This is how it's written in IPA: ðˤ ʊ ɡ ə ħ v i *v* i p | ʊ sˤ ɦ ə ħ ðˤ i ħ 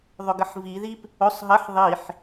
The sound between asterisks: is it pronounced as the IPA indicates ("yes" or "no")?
no